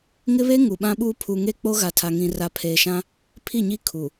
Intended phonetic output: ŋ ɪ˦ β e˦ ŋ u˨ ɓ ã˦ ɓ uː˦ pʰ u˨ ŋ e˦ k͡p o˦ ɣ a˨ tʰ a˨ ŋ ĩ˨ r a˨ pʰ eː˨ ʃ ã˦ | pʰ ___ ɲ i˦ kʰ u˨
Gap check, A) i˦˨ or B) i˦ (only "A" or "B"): A